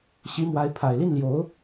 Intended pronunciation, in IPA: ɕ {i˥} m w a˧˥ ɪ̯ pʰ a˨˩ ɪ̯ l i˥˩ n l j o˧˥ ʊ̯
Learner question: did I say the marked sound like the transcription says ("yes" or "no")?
no